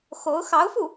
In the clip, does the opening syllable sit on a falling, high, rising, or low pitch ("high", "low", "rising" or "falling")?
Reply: rising